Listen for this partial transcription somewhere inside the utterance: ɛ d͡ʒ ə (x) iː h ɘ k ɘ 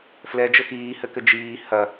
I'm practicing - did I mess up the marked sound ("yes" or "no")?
no